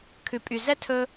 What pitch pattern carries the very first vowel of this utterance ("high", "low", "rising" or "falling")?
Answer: low